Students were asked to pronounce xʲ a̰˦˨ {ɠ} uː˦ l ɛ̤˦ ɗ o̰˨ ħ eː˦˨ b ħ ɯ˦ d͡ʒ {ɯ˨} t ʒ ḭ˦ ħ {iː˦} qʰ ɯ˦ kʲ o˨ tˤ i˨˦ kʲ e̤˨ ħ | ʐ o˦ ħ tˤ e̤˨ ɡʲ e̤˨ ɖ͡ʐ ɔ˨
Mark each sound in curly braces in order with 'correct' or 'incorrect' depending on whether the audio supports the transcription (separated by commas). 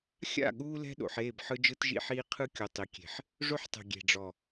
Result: correct, incorrect, correct